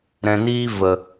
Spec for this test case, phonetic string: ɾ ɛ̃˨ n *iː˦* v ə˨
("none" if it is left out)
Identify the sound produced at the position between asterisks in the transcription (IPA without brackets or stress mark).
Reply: iː˦